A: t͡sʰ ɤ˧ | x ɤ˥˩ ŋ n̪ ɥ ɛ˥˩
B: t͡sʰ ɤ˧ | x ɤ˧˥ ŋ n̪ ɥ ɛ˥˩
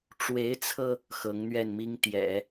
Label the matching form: B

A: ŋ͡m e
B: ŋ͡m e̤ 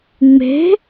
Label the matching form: B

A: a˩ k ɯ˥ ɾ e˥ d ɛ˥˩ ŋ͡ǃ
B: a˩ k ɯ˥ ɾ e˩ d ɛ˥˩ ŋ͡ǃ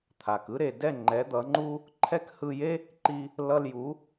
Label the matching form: B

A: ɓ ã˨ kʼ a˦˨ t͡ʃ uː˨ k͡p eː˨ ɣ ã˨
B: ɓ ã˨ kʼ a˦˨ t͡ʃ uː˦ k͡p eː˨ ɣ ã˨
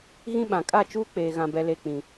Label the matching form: B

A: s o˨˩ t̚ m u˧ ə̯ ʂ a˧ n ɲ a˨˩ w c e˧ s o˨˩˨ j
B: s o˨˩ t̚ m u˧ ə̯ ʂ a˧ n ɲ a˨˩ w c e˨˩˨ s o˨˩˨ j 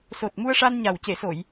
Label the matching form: B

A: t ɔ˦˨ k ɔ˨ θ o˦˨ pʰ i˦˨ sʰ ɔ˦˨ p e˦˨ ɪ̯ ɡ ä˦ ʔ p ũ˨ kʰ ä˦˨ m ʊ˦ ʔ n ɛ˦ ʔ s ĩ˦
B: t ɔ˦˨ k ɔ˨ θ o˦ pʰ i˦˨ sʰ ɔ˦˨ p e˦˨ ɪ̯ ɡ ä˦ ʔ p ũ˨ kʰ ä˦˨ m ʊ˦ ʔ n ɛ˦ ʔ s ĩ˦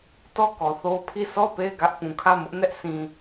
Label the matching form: B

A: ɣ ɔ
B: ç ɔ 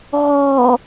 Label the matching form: A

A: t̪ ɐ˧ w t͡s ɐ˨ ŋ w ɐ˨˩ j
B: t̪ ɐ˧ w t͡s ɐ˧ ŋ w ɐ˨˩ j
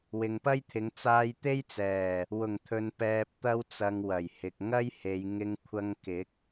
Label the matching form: A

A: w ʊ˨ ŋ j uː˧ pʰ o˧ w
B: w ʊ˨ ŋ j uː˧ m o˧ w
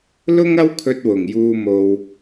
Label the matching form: B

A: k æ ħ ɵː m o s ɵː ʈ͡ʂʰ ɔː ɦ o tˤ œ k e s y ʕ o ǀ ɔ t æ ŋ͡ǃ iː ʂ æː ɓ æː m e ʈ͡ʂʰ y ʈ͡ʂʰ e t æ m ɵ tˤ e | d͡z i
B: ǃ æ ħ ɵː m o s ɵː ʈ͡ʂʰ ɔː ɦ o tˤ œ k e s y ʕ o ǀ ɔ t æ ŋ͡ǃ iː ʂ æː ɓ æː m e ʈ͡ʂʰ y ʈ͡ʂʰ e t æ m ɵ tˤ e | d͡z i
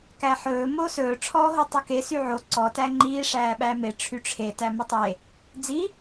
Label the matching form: A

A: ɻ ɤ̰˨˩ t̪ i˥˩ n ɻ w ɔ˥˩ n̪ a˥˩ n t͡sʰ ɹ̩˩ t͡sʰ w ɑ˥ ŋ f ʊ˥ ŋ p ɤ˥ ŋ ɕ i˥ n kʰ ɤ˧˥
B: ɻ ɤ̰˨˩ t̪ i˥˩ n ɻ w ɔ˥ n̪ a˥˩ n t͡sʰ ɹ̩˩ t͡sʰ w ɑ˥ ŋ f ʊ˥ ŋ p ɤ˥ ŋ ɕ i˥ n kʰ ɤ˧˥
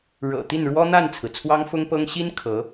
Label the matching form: B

